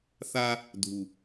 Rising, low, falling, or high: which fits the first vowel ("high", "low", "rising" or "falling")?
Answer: high